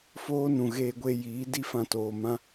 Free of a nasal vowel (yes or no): no